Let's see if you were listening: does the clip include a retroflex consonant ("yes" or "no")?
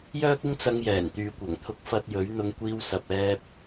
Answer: no